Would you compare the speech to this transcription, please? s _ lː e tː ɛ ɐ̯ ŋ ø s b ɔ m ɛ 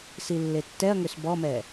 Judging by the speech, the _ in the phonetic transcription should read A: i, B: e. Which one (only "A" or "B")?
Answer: A